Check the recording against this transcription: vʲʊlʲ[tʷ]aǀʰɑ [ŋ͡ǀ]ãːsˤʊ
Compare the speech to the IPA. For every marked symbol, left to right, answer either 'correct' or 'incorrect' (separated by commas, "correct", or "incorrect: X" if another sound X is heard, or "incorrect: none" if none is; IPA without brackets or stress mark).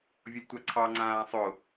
correct, correct